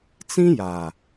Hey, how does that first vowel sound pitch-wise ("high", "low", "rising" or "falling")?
high